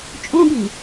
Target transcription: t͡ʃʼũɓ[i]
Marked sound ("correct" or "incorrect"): correct